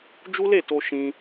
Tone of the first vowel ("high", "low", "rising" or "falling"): high